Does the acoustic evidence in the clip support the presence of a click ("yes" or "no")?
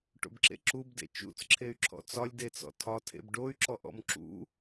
yes